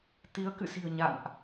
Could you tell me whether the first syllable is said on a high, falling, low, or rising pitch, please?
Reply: rising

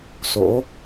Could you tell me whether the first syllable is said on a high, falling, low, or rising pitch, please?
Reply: rising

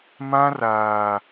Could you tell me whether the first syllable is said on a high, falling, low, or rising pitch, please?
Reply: high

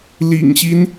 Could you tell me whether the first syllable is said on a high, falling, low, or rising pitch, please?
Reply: low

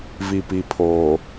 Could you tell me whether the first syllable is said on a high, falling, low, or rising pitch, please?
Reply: low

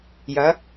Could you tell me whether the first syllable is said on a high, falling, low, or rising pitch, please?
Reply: rising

